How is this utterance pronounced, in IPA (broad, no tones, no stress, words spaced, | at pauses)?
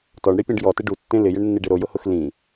tɔɳɽipʲɛ̃ɖ jɔtɪ ɖutːẽ lɪjɪɳnːiɖɪ ɾojʊhʊx lĩ